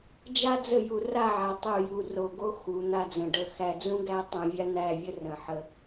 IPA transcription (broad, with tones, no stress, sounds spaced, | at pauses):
d͡ʒ a˦ d͡z ə˦˨ j u˨ r a˦˨ ʕ a˨ tˤ u˦˨ j u˦˨ r o˨ ɡ o˦ x u˨˦ n̪ a˦ d͡z ə̃˨ ɖ ə˦˨ x æ˨ d͡z ũ˦ ɡ æ˦ tˤ ũ˨ vʲ a˦ n̪ æ˦˨ vʲ ə˦ r ə̃˨ ħ ə˦